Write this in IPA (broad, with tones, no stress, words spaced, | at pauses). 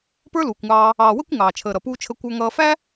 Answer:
pə˞˥luː˩kʷŋɑː˧ | ɑː˩wə˥kʷ ŋɑː˩t͡ʃʰəː˩ ɾʌ˩puː˧t͡ʃʰə˧ kʷə˞˧ŋʌː˧fæ˥